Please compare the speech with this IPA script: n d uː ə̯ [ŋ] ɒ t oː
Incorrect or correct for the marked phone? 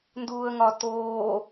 correct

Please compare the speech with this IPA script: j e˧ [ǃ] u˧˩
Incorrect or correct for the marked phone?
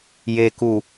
incorrect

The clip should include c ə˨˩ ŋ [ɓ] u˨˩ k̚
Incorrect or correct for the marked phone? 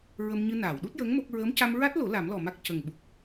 correct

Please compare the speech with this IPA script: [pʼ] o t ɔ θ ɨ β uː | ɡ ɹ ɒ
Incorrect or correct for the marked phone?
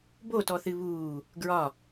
incorrect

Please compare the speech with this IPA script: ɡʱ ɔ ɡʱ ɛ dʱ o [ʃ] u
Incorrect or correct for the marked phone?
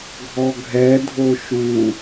correct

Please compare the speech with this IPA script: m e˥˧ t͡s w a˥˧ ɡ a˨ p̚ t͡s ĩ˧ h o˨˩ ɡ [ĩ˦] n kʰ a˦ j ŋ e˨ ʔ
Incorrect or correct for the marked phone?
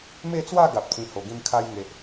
incorrect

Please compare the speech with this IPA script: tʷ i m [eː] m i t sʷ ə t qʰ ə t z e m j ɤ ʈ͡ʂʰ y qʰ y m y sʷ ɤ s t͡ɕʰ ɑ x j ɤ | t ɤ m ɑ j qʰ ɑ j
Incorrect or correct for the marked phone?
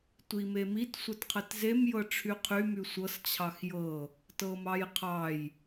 incorrect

